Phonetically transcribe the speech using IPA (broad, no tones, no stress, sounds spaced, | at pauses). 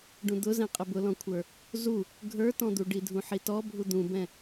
ɖ ũ d̪ ʊ z ɛ̃ qʼ ə b ʊ l ɔ̃ kʷʰ ə˞ | z u | ɡʱ ə˞ t ɔ̃ d̪ u ɖ i dʱ ũ ħ i t ɔ bʱ u d̪ ũ b ɛ̃